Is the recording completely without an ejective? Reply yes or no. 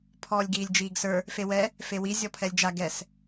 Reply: yes